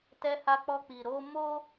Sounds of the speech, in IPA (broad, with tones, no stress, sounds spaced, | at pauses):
t ɛ˧ h a˧ k͡p ɔ˧ k͡p i˨ ɾ o˧ m o˦